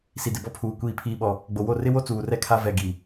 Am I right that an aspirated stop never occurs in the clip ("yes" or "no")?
no